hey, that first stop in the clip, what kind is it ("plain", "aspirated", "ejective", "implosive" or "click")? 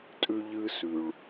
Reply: ejective